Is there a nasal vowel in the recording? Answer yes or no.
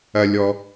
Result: no